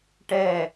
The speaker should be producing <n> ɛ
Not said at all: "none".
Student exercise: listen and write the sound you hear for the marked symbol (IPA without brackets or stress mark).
ʈ